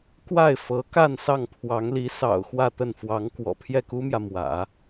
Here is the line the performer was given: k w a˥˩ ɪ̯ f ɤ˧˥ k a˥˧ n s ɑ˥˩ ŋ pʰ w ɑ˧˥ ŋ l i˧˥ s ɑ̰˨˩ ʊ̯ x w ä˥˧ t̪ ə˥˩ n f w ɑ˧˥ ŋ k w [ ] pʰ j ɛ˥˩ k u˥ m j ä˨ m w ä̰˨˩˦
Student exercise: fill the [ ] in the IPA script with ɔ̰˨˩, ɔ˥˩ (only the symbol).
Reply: ɔ̰˨˩